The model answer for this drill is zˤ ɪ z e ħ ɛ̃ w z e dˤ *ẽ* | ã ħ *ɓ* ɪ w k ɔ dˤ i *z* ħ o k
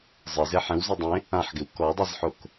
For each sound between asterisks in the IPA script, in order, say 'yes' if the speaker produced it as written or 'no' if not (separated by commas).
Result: yes, no, yes